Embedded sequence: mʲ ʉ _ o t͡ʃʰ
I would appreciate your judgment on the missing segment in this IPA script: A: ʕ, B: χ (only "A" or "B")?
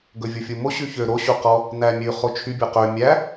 B